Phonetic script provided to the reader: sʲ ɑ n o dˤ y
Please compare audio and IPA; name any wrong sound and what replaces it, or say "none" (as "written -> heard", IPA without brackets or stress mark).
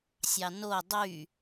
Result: none